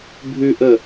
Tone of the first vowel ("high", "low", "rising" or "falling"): low